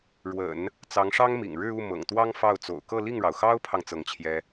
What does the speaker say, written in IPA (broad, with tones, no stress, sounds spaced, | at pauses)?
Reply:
ɻ w ə̰˨˩˦ n | t͡s ɑ˧˥ ŋ ʂ ɑ˥ ŋ m ḭ˨˩ ŋ ɻ ɻ̩˥˧ u˥˩ m ɤ̰˨˩ ŋ t̪ w ɑ˥ ŋ f ɑ˥˩ ʊ̯ t͡s o̰˨˩ ʊ̯ k ɤ˥˧ l i˥˩ ŋ ɻ ɑ˩ ʊ̯ x ɑ˥ ʊ̯ pʰ ɑ˨ ŋ t͡s ɤ˥˩ ŋ t͡ɕʰ j ɛ˥